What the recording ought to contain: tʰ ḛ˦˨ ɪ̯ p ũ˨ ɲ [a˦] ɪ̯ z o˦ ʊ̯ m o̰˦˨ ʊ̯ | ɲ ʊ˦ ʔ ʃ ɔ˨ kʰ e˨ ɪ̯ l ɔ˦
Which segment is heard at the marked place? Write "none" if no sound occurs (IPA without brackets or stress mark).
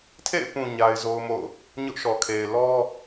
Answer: a˦